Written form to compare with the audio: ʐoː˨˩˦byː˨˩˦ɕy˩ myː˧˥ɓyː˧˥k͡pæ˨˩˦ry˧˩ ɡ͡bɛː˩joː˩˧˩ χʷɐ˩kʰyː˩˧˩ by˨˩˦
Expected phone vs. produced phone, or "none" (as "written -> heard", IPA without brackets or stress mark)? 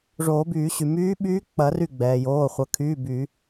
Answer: æ˨˩˦ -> ɐ˨˩˦